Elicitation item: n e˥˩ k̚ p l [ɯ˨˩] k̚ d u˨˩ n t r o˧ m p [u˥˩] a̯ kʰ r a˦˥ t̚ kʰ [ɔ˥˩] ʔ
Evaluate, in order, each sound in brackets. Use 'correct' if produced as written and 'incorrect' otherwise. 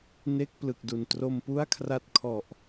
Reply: correct, correct, incorrect: ɔ˨˩

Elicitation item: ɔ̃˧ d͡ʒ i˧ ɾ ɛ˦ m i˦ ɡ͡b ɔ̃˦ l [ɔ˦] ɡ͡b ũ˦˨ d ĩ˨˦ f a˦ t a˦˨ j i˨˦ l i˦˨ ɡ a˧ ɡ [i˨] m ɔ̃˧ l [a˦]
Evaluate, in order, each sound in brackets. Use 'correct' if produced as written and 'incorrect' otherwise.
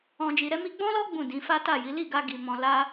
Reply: correct, correct, correct

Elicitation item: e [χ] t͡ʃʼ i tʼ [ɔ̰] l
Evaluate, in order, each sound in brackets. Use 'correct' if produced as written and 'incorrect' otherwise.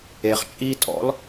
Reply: correct, correct

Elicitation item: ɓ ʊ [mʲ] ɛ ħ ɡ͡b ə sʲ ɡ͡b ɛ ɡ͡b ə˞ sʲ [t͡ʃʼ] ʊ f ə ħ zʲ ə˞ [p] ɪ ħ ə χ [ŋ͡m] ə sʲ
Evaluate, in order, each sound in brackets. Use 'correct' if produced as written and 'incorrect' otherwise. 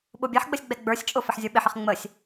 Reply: incorrect: bʲ, correct, incorrect: ɓ, correct

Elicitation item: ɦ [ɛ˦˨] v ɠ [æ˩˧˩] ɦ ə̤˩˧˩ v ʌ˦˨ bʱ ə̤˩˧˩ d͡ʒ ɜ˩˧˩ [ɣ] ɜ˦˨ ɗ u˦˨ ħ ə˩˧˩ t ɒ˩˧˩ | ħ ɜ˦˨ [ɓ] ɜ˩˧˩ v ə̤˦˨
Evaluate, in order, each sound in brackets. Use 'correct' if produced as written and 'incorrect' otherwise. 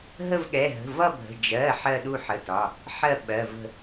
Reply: incorrect: ə˦˨, incorrect: ɛ˩˧˩, incorrect: ħ, correct

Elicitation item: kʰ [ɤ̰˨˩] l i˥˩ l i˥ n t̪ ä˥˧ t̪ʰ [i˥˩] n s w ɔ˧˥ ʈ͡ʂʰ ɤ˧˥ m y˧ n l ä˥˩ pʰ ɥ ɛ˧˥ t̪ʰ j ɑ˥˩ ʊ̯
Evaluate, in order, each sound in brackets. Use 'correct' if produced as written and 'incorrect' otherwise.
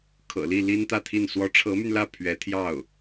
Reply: correct, correct

